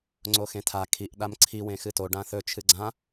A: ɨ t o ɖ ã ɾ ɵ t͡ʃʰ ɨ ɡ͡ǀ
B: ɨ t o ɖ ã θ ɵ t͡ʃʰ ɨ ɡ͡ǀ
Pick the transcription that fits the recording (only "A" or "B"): B